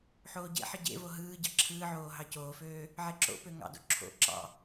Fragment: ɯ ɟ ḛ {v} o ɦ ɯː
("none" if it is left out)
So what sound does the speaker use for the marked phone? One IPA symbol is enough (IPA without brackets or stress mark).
v